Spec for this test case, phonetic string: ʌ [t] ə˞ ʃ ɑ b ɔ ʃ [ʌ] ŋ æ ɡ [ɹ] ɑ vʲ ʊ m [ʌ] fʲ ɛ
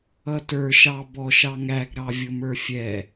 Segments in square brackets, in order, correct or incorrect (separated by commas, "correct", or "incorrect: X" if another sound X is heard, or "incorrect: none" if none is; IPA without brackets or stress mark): correct, incorrect: ɑ, incorrect: ɾ, incorrect: ə˞